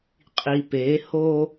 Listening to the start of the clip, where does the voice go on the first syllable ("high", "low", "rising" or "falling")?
low